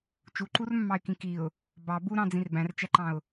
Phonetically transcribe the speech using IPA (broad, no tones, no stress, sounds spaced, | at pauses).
t͡ʃ u ǃ u r mː ɑ ɪ̯ k ĩ k i ʊ̯ | b ɑ b u ɾ ɑ̃ d͡z ĩ r b æ̃ r t͡ʃ æ ǃ ɑ̃ ʊ̯